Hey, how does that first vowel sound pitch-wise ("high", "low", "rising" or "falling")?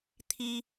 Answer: high